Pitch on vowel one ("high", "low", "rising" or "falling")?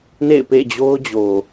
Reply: falling